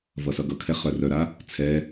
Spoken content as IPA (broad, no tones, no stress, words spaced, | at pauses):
vʌsʌɡʌkʰɛ χœrœɾa | t͡sʰɛ